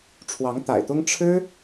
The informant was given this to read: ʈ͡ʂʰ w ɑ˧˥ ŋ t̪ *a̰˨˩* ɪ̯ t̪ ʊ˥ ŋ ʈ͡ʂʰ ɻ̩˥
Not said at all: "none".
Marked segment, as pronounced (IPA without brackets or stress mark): a̰˨˩